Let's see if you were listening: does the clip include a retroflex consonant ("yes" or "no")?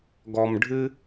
yes